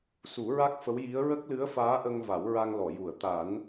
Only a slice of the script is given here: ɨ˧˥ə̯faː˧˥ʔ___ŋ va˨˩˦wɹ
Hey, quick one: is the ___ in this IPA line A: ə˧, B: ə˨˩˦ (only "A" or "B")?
A